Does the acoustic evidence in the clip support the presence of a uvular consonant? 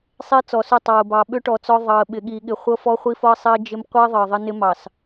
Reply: yes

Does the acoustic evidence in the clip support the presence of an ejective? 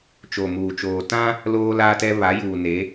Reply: no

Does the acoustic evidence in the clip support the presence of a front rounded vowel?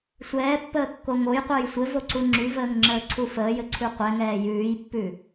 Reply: yes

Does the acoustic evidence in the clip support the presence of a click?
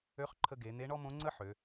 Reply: yes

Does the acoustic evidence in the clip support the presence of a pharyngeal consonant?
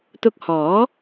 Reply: no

